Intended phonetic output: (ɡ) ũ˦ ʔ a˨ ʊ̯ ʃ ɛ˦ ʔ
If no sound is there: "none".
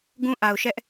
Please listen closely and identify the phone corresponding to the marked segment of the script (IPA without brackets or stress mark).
ɡ